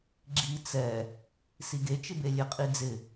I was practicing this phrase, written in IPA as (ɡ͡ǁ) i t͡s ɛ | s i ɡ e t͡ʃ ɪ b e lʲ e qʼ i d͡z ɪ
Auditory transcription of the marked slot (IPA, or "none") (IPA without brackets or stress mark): ɡ͡ǁ